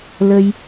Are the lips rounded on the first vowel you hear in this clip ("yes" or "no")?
no